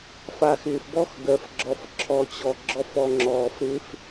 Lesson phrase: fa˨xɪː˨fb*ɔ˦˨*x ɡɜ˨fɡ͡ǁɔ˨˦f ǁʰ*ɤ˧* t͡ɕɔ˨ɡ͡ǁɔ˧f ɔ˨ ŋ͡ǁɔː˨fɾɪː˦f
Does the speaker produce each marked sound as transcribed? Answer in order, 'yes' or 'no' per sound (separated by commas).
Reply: yes, no